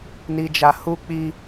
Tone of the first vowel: low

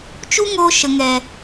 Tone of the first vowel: high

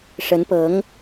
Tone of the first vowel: rising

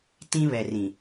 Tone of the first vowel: high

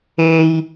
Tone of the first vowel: high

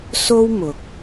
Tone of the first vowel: high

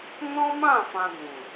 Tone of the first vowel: high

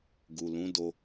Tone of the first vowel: low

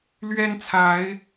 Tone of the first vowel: high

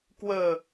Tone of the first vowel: low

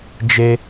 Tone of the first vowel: high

